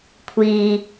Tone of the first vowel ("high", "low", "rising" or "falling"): low